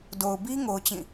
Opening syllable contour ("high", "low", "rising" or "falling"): low